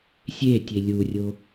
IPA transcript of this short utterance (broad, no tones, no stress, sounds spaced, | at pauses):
sʲ e tʲ e lʲ u rʲ o